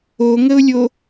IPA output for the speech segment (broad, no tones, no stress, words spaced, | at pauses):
oŋəʊ̯lʲo